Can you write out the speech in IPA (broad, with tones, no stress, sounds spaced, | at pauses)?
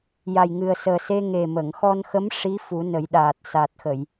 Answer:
j a˨˩ j ŋ ɨ˨˩ ə̯ s əː˨˩ s e˧ ŋ e˨˩ m ə˨˩˨ ŋ x ɔ˧ n x ə˧˥ m ʂ i˧˥ f u˨˩˦ n ə˨˩˦ j ɗ aː˨˩ t̚ s a˨˩ t̚ x ə˨˩˨ j